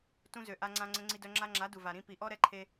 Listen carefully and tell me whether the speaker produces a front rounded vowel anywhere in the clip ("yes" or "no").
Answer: yes